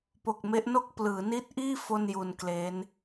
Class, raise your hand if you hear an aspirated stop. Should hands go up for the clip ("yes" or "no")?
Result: no